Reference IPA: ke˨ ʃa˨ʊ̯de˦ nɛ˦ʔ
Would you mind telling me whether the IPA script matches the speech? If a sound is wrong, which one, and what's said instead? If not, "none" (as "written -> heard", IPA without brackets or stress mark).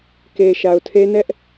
d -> tʰ